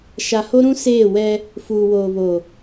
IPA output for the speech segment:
ʃ a˨ h o˦ ɾ ũ˦ s eː˦˨ w ɛ˦ | f uː˨ w oː˨ β o˨

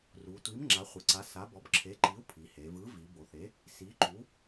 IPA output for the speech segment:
r u˩˧ tʷ i˨˥ m ŋ͡ǁ a˨˥ χʷ ɯ˩˧ ǀ a˨˥ s a˨˥ b ɔ˨˥ b ǁʰ e˨˥ ǃ i˨˥ u̯ pʰ i˩˧ h e˩˧ v ɯ˨˥ v i˩˧ b o˩˧ θ e˨˥ | s i˨˥ ǃ u˨˥

